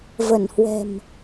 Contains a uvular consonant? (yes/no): no